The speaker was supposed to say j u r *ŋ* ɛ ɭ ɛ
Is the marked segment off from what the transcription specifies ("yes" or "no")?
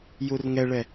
no